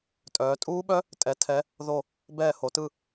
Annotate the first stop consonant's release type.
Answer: ejective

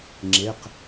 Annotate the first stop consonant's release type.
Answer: click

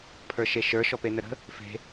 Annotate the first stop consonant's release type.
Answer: aspirated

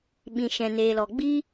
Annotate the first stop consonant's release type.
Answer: implosive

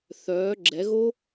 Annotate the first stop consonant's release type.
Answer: click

